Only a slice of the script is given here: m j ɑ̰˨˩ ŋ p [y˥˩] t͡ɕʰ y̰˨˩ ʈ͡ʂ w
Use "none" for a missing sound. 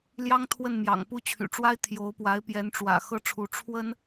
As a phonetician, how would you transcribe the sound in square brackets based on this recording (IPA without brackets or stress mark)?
u˥˩